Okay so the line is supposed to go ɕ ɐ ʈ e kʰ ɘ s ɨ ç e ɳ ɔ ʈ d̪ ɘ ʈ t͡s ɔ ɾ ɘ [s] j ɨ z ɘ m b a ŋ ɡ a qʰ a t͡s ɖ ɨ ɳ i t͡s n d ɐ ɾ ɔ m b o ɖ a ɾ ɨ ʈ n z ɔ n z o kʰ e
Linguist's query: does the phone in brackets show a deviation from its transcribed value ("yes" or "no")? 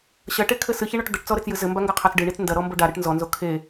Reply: yes